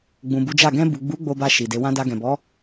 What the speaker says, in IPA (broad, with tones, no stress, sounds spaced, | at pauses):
ɡ͡b ũ˨ b u˨˦ d͡ʒ a˦˨ ɡ ɛ̃˧ b u˨ ɡ͡b u˨˦ ɡ͡b o˧ b a˧ ʃ i˨ d e˨˦ w ã˧ d a˧ ɡ ɛ̃˨ b ɔ˨˦